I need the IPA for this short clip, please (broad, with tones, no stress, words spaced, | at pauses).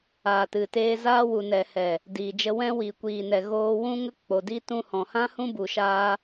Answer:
aː˨tɨ˨teː˧zaː˦ wu˨nɛ˨hɛ˨ | diː˨d͡ʒə˧ wɛ̃˧wi˨kʷiː˨nɛ˨ ɣoː˧wũ˦ŋə˦ k͡po˨di˦tũ˦ hɔ̃˨hã˦hũ˦ bu˨ʃaː˧